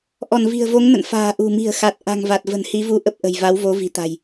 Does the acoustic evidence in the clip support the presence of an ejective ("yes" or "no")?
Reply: no